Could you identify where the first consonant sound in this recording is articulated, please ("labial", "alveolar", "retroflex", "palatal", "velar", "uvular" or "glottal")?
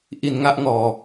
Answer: glottal